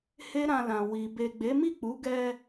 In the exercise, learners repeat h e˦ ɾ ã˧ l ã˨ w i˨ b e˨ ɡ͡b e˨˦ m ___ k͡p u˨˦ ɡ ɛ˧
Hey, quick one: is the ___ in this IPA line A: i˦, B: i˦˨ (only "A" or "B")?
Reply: B